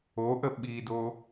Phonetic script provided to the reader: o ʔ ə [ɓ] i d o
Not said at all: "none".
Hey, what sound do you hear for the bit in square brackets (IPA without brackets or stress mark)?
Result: ɓ